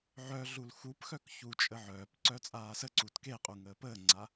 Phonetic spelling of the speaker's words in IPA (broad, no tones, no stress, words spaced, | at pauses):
ʕœ ɮulxupxœk çut͡ʃʼə ʕœːpǀœ t͡sʼaːsəǀut keqʼu ŋəːpəːŋ͡ǀa